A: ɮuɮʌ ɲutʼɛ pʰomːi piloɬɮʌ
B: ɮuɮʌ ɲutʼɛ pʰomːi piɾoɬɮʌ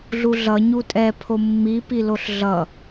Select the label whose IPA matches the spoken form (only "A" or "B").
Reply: A